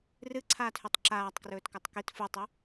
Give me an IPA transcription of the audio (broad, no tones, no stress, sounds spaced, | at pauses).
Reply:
r ɨ ǀʰ aː t h ʉ tˤ ǁ aː tˤ k r ɵː t k ʉ tˤ k i t f u tˤ ɵ